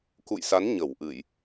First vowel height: high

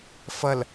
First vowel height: mid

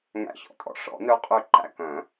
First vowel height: low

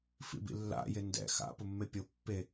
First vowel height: high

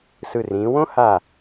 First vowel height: high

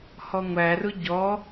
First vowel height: mid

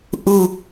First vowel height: high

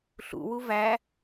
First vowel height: high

